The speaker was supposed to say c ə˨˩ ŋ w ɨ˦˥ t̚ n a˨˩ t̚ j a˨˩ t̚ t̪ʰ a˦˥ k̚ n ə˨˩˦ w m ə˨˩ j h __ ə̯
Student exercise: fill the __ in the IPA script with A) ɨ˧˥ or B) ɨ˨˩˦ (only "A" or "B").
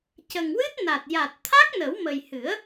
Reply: B